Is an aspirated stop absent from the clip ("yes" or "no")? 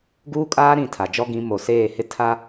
no